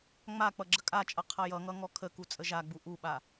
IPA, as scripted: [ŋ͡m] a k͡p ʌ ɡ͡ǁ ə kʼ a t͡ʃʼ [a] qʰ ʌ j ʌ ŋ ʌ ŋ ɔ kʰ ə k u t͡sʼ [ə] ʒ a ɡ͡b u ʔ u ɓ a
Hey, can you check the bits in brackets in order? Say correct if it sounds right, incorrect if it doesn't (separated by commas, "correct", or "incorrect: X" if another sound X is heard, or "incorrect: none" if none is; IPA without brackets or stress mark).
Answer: correct, incorrect: ʌ, correct